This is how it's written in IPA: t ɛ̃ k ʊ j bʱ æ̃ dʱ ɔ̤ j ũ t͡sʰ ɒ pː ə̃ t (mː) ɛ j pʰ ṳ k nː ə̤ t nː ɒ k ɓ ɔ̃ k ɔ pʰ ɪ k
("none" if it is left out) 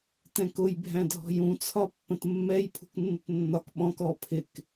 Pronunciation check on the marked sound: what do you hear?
mː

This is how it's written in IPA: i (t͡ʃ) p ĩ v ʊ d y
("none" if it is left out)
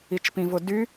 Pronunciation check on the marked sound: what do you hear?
t͡ʃ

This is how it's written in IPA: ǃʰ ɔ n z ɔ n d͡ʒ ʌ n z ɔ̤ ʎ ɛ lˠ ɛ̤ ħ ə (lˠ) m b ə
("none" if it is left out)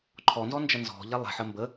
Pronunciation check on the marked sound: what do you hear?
none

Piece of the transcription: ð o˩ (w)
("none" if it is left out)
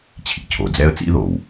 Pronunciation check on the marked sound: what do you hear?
w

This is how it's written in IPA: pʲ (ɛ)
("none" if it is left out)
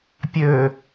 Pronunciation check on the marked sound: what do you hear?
ø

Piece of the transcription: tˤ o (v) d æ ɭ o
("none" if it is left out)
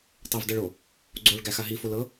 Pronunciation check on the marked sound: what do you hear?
v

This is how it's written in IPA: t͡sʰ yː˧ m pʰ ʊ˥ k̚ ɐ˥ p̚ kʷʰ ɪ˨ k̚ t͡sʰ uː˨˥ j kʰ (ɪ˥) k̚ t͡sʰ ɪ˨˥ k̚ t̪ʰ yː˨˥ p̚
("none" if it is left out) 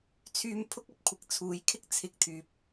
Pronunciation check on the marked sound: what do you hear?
ɪ˥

